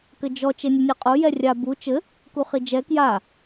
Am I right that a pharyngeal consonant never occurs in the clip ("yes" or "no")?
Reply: yes